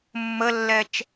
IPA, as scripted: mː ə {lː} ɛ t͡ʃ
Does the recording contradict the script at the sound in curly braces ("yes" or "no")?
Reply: no